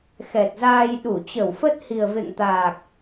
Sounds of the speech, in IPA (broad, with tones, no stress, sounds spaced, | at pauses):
x ɛ˨˩ t̚ z aː˧ j ɗ u˧˩ t͡ɕ ə˧˩ w f ə˦˥ t̚ h i˨˩ ə̯ v ḛ˧˨ ŋ t̪ aː˨˩ k̚